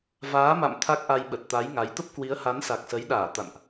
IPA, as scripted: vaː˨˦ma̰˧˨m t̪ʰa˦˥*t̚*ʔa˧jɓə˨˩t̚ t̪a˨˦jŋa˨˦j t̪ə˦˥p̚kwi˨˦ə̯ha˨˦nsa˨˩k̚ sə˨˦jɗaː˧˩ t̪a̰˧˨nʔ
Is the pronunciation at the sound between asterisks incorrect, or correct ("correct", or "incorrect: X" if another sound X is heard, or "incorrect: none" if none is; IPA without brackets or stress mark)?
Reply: incorrect: k̚